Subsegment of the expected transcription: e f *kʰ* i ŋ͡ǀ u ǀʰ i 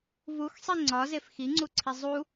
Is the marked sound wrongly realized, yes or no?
yes